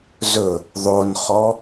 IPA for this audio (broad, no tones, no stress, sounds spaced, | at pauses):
z ɵ | ðˤ o n χ ɔ